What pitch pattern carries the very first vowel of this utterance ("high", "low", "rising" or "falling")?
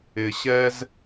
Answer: low